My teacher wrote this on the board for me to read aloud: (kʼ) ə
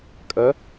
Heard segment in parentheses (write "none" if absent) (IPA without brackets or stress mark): kʼ